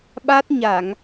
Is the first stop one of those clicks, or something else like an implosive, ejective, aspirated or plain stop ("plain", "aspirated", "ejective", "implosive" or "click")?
implosive